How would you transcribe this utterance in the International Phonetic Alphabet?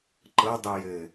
ǃɤdˤi jɘ

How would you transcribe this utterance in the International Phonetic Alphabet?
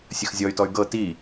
sʲəxzʲɔy̯tɔy̯ ɡɤ ti

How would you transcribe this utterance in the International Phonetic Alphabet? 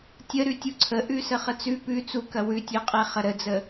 tʲəɾʉ tʲuǀʰəʔʉ səχət͡sʉ pʉ t͡sukɐ wʉtʲʉqʼe χɐɾəd͡zə

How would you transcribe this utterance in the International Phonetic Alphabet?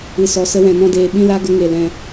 ɨ˧sɔ˧sə˦wɛ̃˧ nɔ̃˦deː˧ ɓĩ˦la˦ ɡə˦ŋe˧lɛ̃˧

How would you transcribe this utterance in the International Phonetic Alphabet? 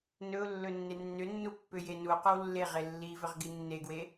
nɵʊ̯ lːɵnːenːʏnːu pːʏjenuqɵw lːeʁe lːivʏʁ ɡinːeɡwe

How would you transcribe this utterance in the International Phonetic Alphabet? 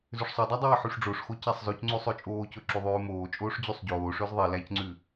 zøʂsˤodˤæ dˤɛːħyʂɖ͡ʐoʂxo cæsˤzøcŋ͡ǀʉ sˤøt͡ʃʼoːcɵ ǁyðˤʉːmoːt͡ʃʼoːʂ d͡ʑysˤɟoːʂøz ðˤi læcŋ͡ǀʉ

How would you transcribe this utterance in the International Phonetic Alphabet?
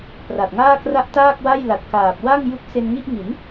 pra˨˩t̚ŋaː˥˩kra˦˥ʔ taː˥˩k̚wa˥˩jla˨˩t̚kaː˨˩p̚ wa˥˩ŋju˦˥k̚ se˧nŋi˥˩ʔŋi˩˦n

